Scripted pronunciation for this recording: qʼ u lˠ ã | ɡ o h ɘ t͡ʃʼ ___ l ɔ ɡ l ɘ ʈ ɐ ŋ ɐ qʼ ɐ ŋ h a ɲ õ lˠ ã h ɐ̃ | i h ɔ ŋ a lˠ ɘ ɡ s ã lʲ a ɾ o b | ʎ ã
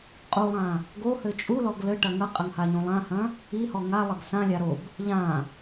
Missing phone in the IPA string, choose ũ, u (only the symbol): u